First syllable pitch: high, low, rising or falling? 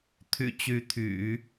low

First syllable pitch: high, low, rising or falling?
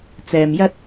low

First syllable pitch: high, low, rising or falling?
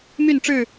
falling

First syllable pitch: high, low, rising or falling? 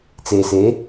low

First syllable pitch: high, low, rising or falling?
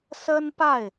high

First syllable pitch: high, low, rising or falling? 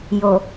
low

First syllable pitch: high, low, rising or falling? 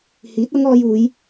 rising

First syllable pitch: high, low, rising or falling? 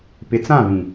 low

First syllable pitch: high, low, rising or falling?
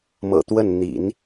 low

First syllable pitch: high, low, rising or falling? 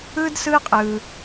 high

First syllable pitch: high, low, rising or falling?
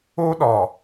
high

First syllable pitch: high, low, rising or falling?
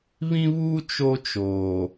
high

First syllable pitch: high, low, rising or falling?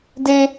high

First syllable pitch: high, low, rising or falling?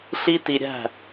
high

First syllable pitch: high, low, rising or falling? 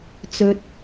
low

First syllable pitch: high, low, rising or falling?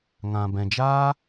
low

